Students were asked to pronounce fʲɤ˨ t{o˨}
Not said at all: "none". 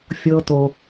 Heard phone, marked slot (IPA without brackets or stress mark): o˨